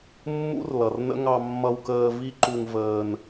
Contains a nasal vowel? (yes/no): no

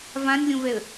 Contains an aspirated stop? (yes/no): no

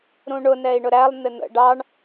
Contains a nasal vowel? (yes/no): yes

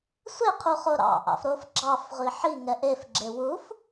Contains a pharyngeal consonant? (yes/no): yes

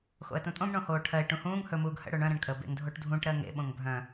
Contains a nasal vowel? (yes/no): yes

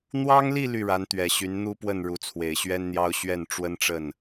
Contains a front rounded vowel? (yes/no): yes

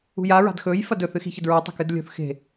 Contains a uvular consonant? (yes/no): no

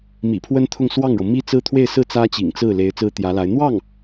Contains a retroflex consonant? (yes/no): yes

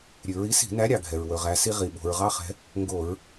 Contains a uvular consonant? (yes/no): yes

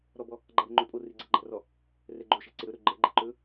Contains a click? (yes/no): yes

